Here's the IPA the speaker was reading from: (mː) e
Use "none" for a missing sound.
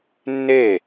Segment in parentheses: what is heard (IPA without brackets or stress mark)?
nː